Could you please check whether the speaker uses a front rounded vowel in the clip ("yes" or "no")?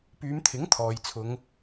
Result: yes